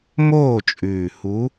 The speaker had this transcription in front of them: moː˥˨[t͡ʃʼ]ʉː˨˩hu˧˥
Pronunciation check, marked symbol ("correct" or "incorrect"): correct